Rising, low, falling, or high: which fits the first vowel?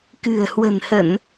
low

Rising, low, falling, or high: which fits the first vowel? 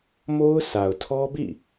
high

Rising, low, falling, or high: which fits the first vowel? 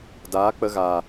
rising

